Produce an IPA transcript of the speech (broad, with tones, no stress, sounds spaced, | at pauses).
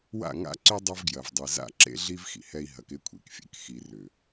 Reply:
w a̰˦˨ ŋ a̰˦ ǀ y˦ dˤ ʏ˦ v ɡ j ɐ˨ v dˤ i˨ z a̰˦˨ ǁ ḛ˦ ɮ i˦ v x ḭ˨ h ɛ˦ i̯ ɦ ɐ˨˦ k ɪ˦ kʷʰ ḭ˨ k fʲ ɛ̰˨ k x i˨ r ʏ˨